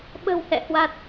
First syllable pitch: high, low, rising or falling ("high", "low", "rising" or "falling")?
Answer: low